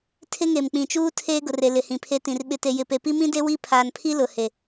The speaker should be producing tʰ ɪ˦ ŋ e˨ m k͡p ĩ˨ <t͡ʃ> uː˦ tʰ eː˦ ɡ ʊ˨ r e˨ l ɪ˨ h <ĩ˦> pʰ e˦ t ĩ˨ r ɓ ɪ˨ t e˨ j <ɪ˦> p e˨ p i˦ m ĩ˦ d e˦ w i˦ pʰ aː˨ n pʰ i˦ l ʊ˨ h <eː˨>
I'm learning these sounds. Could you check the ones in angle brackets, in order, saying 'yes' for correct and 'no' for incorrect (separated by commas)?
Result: yes, no, no, no